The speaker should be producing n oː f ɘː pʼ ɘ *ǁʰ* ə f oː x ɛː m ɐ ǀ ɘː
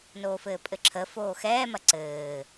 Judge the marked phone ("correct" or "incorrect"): correct